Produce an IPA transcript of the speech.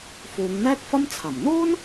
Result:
f uː˨˧ ŋ n̪ ɛː˥ k̚ f ɐ˥ m t͡sʰ ɐ˨˩ m n̪ uː˥ n

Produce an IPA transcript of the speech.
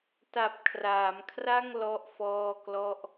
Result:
t a˨˩ p̚ kʰ r aː˩˦ m kʰ r a˥˩ ŋ l ɔ˥˩ ʔ f ɔː˥˩ k l ɔ˥˩ ʔ

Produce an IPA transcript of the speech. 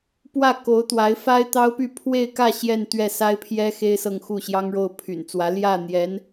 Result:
p w ä˥˩ k o˧˥ ʊ̯ t̪ w a˧˥ ɪ̯ f a˥ ɪ̯ t̪ ɑ˥ ʊ̯ p y˥˧ pʰ w e˥˧ ɪ̯ k ä˥˧ ɕ j ɛ˥˧ n t̪ ɥ ɛ˥˩ s a˥ ɪ̯ pʰ j ɛ˥ x e˥ ɪ̯ s ɤ˥˧ ŋ x u˥˩ ɕ j ɑ˥ ŋ ɻ o˥˩ ʊ̯ pʰ y̰˨˩ n t͡s w ä˧˥ l j ä˥˩ n̪ j ɛ˧˥ n

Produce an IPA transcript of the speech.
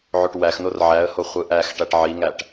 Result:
ʕ o ʈ w æ x n o r ʕ æ ə̯ h o χʷ ɯ ʔ æ x ʈ æ ʈ ʕ i ŋ æ ʈ

